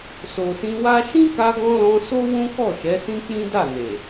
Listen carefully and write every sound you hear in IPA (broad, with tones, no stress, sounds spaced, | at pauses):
s o˨ s ĩ˧ w a˦ ʃ ĩ˦ k a˧ ɡ ɔ̃˧ l ɔ̃˧ s o˦ w ũ˦ k ɔ˦˨ ʃ ɛ˨˦ s ĩ˦ k͡p ĩ˦ d a˦˨ n e˨